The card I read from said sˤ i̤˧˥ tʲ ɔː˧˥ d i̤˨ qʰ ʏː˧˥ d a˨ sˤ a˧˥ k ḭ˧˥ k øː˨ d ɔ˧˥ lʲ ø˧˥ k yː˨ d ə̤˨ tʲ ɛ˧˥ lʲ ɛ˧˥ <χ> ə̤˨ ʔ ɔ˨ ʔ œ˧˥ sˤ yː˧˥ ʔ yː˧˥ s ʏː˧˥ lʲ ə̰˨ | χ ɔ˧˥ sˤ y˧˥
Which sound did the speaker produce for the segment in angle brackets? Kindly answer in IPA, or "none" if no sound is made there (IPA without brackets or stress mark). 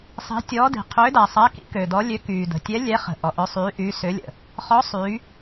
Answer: χ